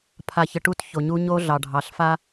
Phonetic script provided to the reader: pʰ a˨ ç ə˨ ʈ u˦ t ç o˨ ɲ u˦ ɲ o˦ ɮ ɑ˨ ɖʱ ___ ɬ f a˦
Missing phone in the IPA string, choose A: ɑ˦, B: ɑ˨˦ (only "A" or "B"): B